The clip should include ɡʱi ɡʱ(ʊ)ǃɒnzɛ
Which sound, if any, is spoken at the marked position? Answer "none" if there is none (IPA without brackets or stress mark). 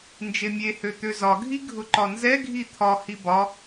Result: ʊ